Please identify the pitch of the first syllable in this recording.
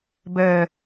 low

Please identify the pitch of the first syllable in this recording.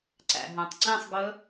low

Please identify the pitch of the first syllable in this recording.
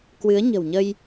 rising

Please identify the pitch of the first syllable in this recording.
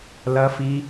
high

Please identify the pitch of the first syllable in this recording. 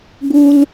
high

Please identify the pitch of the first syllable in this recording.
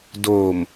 low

